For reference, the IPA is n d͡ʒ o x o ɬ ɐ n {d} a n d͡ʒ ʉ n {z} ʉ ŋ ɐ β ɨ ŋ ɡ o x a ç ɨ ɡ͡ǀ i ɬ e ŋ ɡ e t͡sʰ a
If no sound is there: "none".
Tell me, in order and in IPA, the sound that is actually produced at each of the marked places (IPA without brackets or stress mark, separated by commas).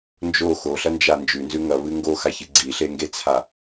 d͡ʒ, z